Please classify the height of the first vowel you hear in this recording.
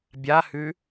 low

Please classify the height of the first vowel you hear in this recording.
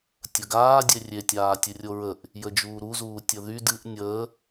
mid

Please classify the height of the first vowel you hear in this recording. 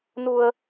high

